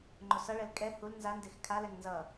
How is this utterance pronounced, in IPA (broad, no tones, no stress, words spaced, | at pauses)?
ŋ͡ǃosʌɭɛl kʼɛ hul nzandex kʰalɛŋ nzʌ